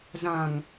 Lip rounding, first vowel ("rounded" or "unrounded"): unrounded